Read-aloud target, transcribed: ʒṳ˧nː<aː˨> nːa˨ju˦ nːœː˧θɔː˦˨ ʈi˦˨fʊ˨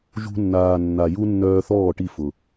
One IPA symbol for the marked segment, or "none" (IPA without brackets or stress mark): aː˨